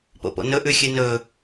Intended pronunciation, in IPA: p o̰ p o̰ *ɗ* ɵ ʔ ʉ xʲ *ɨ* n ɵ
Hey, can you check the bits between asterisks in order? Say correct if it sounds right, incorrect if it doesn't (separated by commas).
incorrect, correct